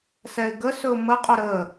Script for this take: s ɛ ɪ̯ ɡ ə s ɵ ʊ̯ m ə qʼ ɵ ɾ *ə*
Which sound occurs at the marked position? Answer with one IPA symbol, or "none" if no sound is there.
ə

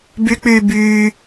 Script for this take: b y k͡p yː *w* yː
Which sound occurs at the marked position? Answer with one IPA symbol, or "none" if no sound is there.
b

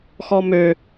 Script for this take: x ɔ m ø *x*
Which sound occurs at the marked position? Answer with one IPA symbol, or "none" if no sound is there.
none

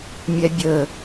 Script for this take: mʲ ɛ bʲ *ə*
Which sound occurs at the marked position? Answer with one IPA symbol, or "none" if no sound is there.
ə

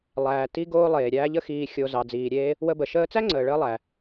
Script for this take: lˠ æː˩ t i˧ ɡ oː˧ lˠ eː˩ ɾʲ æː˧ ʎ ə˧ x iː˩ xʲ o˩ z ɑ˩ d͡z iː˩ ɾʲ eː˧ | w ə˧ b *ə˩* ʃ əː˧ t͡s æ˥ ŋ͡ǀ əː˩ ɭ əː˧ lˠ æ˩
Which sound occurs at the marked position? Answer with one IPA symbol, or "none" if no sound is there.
ə˩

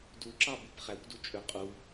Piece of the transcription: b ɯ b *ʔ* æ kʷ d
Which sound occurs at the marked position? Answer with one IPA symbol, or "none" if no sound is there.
χ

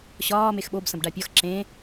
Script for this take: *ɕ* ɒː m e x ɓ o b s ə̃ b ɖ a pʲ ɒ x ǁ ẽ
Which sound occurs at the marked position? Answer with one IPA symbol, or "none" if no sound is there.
ɕ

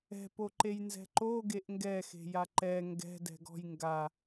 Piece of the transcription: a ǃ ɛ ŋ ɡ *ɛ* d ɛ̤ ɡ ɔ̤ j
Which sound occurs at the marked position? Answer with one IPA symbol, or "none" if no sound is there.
ɛ̤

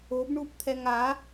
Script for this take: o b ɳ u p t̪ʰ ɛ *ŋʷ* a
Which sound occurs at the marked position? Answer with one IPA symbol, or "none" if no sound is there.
ŋ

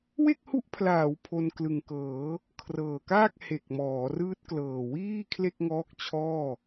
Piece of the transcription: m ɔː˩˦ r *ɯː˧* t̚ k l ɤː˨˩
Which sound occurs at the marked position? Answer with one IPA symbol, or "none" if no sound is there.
ɯː˦˥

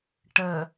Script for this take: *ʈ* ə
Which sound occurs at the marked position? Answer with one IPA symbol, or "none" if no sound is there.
ʈ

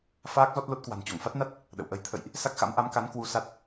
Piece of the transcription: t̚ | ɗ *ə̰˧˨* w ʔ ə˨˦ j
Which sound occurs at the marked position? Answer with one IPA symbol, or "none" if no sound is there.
ə̰˧˨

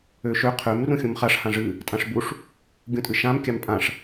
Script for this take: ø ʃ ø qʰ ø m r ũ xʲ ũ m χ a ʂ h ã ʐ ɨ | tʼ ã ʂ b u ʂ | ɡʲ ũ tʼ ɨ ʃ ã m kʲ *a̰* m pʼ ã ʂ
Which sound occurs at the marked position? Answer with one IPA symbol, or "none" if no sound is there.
a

